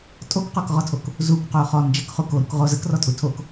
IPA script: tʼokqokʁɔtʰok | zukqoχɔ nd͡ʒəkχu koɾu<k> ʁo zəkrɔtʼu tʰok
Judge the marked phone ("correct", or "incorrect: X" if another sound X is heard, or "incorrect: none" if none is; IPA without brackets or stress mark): correct